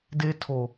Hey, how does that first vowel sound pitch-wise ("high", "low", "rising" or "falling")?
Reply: high